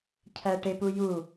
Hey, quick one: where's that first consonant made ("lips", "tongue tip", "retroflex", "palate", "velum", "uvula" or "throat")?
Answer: palate